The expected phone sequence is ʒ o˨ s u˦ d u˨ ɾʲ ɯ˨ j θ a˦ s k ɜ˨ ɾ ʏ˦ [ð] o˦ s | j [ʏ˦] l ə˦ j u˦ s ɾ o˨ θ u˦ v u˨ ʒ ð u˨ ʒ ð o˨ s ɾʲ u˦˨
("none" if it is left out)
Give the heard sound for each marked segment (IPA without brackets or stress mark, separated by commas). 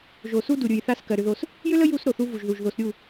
ð, ʏ˦